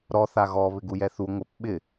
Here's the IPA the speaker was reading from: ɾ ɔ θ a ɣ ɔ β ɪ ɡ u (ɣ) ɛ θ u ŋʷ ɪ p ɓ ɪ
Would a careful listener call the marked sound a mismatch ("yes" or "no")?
yes